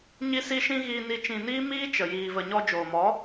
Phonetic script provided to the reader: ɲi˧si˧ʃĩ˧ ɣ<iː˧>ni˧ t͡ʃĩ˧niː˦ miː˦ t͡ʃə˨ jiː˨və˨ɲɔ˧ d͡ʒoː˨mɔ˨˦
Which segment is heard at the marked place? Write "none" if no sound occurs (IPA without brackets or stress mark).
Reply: iː˧